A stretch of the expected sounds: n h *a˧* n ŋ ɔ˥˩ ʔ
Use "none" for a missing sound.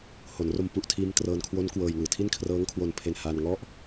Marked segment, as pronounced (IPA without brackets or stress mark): aː˧